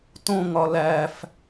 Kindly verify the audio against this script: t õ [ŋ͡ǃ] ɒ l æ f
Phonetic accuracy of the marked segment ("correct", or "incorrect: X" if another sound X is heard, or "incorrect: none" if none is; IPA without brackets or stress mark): incorrect: ŋ